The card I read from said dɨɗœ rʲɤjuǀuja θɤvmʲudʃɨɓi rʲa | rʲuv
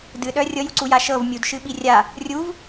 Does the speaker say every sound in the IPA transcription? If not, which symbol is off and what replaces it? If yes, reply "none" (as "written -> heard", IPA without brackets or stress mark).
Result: θ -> ʃ